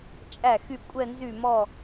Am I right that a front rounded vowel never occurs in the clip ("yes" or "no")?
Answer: no